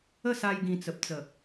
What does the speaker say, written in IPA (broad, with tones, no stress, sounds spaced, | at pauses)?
ə˥˧ s a˧ j ɡ ĩ˨˩ t͡s ə˨ p̚ t͡s ə˨˩